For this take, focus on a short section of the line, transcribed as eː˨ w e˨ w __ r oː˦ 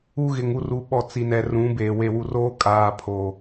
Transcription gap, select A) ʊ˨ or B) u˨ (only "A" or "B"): B